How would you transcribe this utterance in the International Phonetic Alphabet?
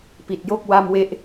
p i˨˩ t̚ j o˥˩ k̚ w a˥˩ m w e˥˩ ʔ

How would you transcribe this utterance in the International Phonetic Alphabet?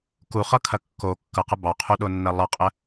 k u χ ʌ kʰ ɐ kː o kː ʌ q ə b ɑ qʰ u ɗ o nː ɐ lˠ ʌ qʼ ə

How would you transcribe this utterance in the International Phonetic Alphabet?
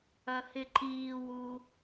ɐ h ɪ ǃ iː w u

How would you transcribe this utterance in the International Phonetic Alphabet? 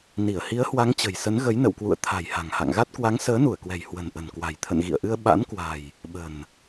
n i˧˩ ə̯ h i˨˦ ə̯ h w a˨˦ ŋ t͡ɕ ə̤˨˩ j s ə˨˦ n ɣ ə˨˦ j n ə̰˧˨ w k w ṵ˧˨ ə̯ t̪ʰ a̤˨˩ j h a̤˨˩ ŋ h a̰˧˨ ŋ ɣ a˦˥ t̚ k w a˨˦ ŋ s əː˨˦ n u˧˩ ə̯ k w ɛ̤˨˩ j h w ə̤˨˩ n ʔ ə̤˨˩ n k w a̤˨˩ j t̪ʰ ə̰˧˨ n ɣ ḭ˧˨ ə̯ ʔ ɨ˧ ə̯ ɓ a̰˧˥ n k w a̤˨˩ j | ɓ ə̤˨˩ n

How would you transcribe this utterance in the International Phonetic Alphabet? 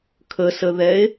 kʰ ə s ə ð ɛ e̯

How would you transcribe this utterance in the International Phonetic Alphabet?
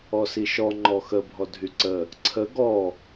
ɔ s i ʃ ɔ ŋ͡ǃ ɔ x ə bʱ ɔ dʱ y ǀ ə | ǀʰ ə ɡ ɔ

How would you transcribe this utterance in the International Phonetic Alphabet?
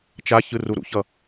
t͡ʃ a ç ɯ r u ɾ ṵ ç ʌ

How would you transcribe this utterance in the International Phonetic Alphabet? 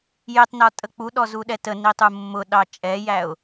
j ɪ tˤ n ɒ tʼ ə k͡p u ɗ ɔ z u ɗ ɛ t ə n i tˤ u mː ʊ ɗ ɑ t͡ʃʼ ɛ j æ ʊ̯

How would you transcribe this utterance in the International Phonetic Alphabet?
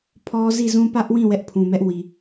pʰ ɔ˦ z i˦˨ z ũ˦ p ä˦ ʔ w ĩ˦˨ w ɛ˦ ʔ pʰ ũ˨ m ɛ˦ ʔ w i˨

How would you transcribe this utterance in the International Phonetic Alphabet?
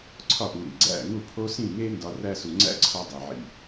ǀʰ ɒ˦˨ ʔ u˨ ɾ ḭ˨ ɡ͡ǀ æ̰˦˨ ŋ u˦˨ pʰ o˦ s ĩ˦˨ ŋ e˦ n d ɒ˦ r æ˧ s u˨ ŋ͡ǀ æ̰˦ ǀʰ ɒ˧ dˤ i˨ ʕ ḭ˧

